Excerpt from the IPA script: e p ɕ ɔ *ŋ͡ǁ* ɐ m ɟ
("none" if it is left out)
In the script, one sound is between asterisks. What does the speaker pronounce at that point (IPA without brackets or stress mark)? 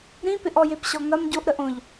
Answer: ŋ